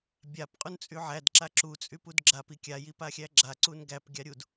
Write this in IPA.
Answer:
bʲapqʼunt͡sʼy ʕædǁa ǁut͡sʼypud ɡ͡ǁapi kʲajipaxʲæ ɡ͡ǁaǀun ɡæpɡʲaɾʲud

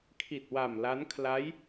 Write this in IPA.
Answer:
kʰi˨˩t̚wa˨˩m la˦˥n kʰla˦˥j

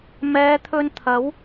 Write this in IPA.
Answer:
mɛː˨˧t̪ʰɵ˧nt̪ʰɐ˨˥w

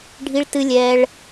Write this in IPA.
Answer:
ɖʱi˦ɭtɨ˦lʲɛː˦ɭ

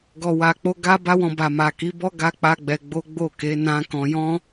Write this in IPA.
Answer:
ɡɔ˨wa˨k͡po˧ ɡa˦ ba˦wɔ̃˧ba˨ ma˨ki˨˦bɔ˦ ɡa˧ k͡pa˦ɡ͡bɛ˧ɡ͡bo˦ ɡ͡bo˦˨ke˨˦nã˦kɔ̃˧ jɔ̃˦

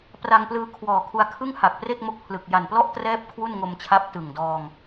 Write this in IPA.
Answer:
pra˧ŋplɯː˧ kʰwɔː˨˩kʰu˧a̯kʰɯ˥˩ŋ ha˨˩k̚ pre˥˩k̚mo˦˥k̚pʰlɯ˨˩k̚ ja˨˩nplɔ˥˩ʔtrɛː˦˥p̚ kʰwu˥˩nŋo˧mt͡ɕʰa˦˥p̚ tɯ˨˩ŋdɔː˧ŋ

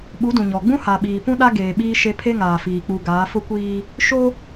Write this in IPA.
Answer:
ɓu˨˦dũ˨ɲɔ˨ɡ͡bũ˦ ha˨ɓiː˨ pũ˦ɗa˦ɡeː˨ ɓiː˦ʃe˦ pʰe˦ŋaː˨fiː˨ k͡pu˨ ɡaː˨˦fʊ˦kʷiː˦ | ʃo˦

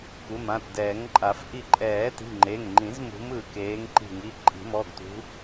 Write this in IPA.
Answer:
ku˩˧˩mã˩˧˩tdɛː˨˩˦ŋǃʼa˨˩˦f ʔi˧˩ǃʼɛː˨˩˦ti̤˩˧˩ ŋ͡ǃe˩˧˩ŋŋ͡ǃĩ˨˩˦zmṳ˨˦m ɯː˧˩keː˨˦ŋǃi̤˧˩ŋi˩˧˩ ǃʼi̤˨˩˦mɔ˩˧˩ɡtṳ˨˦

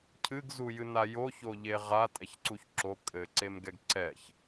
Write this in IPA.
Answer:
cʰɨɡ zujɨnajo çoʎeʁa tʼɛçǀuçǁo kʼɘ ǀemɡɛɡǀɛç

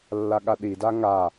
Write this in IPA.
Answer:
lːaɠaɗida ŋa

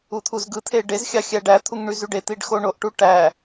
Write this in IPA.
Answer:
ut̪ʰuzɡɯt̪ʰe ɖezxʲɑ xʲæɖæt̪ʰuŋ ɳyzyɖet̪iɖ xoɳoʔʈu ʈæ

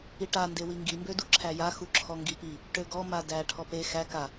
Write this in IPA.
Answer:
iʈa ndewiŋɡi mbøduǁʰæja xuǁʰɔŋɡipi | ʈøɡɔ madæ ʈʰɔpe xæ ka

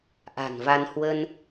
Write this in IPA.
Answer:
ʔa̤˨˩nva˧n hwə˧n

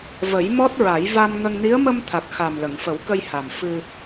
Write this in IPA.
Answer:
və˨˩˦j mɔ˦˥t̚ɹa˨˩˦j va˧mŋə˧ŋ ni˧˥ə̯mə˧mt̪ʰa˨˩k̚ xa˨˩mlə˨˩˨ŋfə˨˩˦wkə˧j ha˨˩m fɨ˧

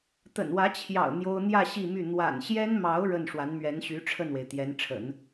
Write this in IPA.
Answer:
t̪ə̰˨˩nwä˧˥t͡ɕʰjɑ̰˨˩ʊ̯ n̪jo˥ʊ̯ n̪jä˥˧ ɕi˥˧my˥˩ n̪wa̰˨˩nɕjɛ˥nmɑ˧˥ʊ̯ ɻə˥˩n ʂwa˧˥nmɥɛ˧˥nɕy˧˥ ʈ͡ʂʰə˥˩nwe˩ɪ̯ t̪jɛ˧˥nʈ͡ʂʰə̰˨˩˦n

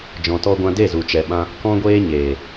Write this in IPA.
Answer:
d͡ʒɔ̃˧tɔ˦ɡʷã˦ de˦˨zu˨ t͡ʃɛ˧ɓã˦ | kɔ̃˦ɡʷeː˦ɲeː˨

